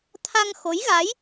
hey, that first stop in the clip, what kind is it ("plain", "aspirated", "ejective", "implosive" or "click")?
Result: aspirated